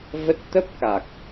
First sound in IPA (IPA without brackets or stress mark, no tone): v